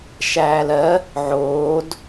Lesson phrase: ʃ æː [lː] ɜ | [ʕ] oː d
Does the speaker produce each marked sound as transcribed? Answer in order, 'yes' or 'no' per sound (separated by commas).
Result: no, yes